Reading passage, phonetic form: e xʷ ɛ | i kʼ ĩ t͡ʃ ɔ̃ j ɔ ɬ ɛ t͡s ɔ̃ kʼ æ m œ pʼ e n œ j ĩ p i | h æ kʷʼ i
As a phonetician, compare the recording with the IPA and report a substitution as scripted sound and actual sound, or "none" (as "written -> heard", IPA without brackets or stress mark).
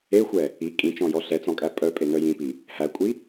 m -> pʼ